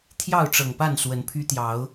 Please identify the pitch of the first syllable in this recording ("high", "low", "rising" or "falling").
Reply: falling